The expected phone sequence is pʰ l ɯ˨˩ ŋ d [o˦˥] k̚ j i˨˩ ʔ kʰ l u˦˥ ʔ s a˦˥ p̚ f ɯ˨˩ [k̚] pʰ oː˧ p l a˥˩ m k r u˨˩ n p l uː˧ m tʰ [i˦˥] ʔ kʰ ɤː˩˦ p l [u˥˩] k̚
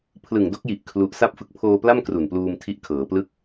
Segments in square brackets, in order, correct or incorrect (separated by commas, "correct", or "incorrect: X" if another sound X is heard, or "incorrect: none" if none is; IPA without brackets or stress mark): correct, correct, correct, incorrect: ɯ˥˩